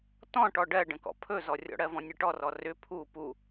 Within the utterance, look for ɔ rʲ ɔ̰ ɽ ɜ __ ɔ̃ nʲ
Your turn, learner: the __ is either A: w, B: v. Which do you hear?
B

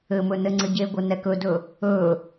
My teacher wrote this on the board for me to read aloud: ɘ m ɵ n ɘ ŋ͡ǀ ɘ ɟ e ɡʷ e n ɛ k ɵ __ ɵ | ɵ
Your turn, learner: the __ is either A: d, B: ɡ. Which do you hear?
A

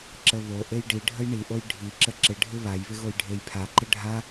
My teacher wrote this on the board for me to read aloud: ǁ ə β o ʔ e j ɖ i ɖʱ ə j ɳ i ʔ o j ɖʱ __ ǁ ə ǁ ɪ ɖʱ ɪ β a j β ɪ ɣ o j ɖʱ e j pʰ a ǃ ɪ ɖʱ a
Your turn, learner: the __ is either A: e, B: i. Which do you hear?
B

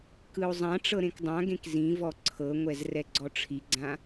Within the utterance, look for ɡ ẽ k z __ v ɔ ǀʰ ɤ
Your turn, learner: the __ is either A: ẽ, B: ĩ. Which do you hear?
B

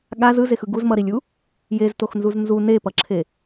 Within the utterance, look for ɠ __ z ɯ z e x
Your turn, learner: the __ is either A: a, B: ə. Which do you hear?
A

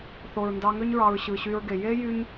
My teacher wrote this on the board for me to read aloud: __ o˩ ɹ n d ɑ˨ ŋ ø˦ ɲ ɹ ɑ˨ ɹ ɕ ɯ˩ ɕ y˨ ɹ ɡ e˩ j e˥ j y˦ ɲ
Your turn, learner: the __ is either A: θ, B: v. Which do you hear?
A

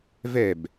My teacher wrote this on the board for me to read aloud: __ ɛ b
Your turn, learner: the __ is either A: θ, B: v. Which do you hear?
B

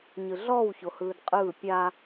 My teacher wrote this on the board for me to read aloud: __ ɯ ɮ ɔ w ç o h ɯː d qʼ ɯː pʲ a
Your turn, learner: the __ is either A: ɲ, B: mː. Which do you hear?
A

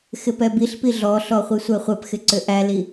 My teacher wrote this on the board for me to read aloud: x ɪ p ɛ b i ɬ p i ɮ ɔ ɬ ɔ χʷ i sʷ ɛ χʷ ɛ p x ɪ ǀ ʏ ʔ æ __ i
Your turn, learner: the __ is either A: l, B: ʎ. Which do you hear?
A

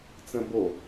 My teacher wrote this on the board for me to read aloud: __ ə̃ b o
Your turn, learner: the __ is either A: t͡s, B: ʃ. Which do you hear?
A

